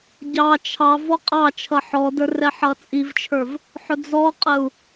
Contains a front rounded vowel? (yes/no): no